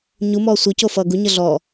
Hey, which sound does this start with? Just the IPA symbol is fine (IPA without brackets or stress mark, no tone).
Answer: ɲ